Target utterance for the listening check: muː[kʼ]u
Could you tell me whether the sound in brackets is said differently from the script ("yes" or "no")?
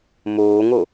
yes